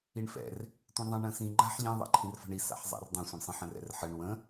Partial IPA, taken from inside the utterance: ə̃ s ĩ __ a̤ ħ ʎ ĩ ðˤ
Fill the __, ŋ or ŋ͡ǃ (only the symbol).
ŋ͡ǃ